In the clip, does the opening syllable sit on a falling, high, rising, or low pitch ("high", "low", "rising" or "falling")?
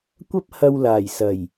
high